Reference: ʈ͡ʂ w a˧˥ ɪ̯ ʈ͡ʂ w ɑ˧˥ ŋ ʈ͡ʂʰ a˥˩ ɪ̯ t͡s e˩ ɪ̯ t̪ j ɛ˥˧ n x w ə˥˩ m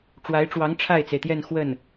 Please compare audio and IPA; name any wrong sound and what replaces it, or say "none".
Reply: m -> n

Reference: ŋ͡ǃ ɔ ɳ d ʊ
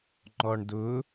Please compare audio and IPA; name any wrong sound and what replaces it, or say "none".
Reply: none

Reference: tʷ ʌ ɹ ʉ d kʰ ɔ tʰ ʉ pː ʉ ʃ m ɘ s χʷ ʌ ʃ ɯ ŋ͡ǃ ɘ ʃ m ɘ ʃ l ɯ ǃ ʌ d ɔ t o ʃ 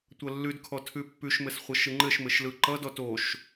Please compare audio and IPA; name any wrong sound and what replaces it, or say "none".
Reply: ɹ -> lː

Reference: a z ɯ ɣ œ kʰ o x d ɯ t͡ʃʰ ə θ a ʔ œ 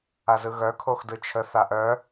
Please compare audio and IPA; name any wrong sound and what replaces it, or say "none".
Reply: none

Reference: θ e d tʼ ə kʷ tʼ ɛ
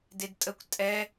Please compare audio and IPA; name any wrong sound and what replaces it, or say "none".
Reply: θ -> d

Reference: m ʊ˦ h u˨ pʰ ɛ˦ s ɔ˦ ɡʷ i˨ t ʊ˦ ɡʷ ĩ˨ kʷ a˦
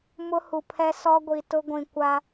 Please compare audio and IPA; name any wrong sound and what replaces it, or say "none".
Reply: none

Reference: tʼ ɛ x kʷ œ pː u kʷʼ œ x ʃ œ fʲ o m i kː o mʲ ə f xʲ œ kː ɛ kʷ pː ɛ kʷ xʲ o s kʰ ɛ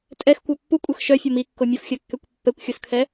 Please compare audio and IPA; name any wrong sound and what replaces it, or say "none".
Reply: none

